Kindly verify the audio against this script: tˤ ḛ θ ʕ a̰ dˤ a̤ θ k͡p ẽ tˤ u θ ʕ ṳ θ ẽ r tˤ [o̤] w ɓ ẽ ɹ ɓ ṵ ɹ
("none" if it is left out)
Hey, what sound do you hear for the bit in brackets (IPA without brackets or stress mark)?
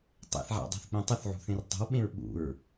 o̤